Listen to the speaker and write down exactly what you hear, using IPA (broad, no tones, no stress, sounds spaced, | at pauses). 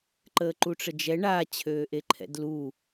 ǃ əː ǃ u ʈ͡ʂ ə d͡ʒ ɛ ɳ a t͡ɕʰ øː ʔ e ǃʰ ɛ̰ d l u